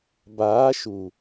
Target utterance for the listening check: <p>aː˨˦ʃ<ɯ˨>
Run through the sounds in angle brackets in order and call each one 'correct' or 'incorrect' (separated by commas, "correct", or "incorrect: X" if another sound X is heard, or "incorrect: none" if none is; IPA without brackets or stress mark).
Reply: incorrect: b, incorrect: u˨